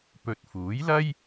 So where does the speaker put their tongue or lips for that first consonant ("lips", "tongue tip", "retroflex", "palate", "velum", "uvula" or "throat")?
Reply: lips